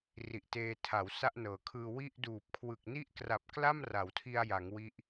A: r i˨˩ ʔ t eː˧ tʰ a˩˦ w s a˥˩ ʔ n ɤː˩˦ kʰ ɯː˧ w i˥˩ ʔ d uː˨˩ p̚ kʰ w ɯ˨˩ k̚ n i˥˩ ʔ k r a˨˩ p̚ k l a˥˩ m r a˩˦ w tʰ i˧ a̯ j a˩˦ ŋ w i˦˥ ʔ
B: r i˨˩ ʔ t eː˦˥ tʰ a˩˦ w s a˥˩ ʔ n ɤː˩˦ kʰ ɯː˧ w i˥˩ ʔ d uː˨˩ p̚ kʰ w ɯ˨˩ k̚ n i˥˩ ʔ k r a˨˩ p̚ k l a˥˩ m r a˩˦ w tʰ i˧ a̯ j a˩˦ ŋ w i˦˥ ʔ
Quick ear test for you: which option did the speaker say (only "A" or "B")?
A